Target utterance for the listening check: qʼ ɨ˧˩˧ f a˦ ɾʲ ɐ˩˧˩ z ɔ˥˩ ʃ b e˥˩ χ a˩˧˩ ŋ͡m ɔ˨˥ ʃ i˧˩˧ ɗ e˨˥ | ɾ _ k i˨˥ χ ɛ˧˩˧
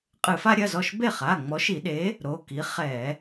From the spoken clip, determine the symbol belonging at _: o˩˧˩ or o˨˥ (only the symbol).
o˩˧˩